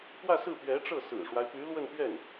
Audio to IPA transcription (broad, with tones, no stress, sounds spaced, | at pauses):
k w ä˥˧ s ɹ̩˥˩ p ɥ ɛ˧˥ ʈ͡ʂ ɤ˥˩ s ɹ̩˨˩ ʂ w a˦ ɪ̯ p y˧˥ l w ə˥˧ n p ɥ ɛ˥˩ n